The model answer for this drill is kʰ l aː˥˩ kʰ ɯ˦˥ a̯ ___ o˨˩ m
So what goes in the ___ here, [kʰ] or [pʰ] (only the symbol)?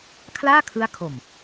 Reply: kʰ